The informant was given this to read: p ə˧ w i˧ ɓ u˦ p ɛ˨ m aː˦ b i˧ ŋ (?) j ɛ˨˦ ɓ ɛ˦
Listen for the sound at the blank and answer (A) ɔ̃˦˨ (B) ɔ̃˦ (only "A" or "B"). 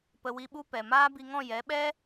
A